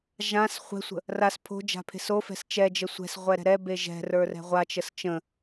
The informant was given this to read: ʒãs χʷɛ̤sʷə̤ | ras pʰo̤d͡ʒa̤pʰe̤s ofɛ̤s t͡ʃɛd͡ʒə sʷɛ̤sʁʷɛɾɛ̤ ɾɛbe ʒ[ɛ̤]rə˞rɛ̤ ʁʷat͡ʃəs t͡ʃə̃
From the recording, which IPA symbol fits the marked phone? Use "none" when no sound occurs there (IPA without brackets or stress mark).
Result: ɛ̤